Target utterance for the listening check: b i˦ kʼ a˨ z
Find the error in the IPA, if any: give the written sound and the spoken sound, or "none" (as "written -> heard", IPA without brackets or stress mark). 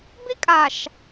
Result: z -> ʃ